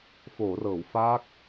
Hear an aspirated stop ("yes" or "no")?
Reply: no